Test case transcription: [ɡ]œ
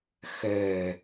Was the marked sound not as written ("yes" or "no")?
yes